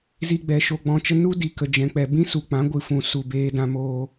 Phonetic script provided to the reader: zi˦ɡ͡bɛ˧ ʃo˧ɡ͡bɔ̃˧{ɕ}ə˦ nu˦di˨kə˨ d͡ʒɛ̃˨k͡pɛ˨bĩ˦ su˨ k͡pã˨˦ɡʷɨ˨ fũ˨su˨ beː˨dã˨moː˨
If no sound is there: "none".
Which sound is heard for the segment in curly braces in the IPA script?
t͡ʃ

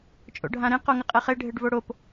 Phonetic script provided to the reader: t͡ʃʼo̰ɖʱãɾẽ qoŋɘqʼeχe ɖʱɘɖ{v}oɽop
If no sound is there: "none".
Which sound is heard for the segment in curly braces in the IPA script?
v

